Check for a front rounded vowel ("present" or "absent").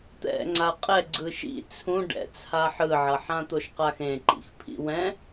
absent